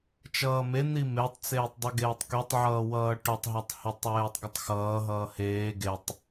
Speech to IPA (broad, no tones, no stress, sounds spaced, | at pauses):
t͡ʃ ʌː m e n̪ i m e tˤ t͡s eː tˤ dˤ i ɡ eː tˤ k y tˤ ʕ ʌː w ʌː ʈ ʊ tˤ ɦ ʌ tˤ h e tˤ w eː tˤ ɡ ʊ tˤ x ʌː ɦ ʌː h eː ɡ e tˤ